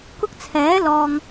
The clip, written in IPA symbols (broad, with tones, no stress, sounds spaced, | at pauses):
k ʊ˧ k̚ t͡sʰ ɛː˨˥ l ɔː˨ ŋ